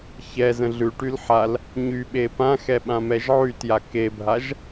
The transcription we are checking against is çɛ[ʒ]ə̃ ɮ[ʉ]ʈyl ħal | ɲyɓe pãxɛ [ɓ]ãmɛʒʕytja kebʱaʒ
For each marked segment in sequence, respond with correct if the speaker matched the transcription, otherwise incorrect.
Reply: incorrect, correct, correct

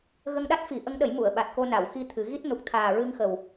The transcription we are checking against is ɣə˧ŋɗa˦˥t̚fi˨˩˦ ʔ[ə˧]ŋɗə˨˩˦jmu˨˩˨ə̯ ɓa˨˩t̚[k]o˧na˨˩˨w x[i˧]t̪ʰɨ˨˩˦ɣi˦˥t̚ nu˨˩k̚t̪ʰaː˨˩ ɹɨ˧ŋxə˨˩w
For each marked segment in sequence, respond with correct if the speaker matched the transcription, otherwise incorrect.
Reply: incorrect, correct, correct

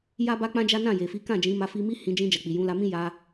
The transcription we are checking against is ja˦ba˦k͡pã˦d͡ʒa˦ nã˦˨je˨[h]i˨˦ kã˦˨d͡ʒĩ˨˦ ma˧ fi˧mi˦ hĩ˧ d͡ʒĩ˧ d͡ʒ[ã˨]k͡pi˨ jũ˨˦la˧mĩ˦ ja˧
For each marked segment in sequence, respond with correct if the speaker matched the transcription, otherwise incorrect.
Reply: incorrect, incorrect

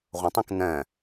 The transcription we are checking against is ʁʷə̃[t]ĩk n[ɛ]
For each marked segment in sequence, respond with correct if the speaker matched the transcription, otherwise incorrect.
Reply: incorrect, incorrect

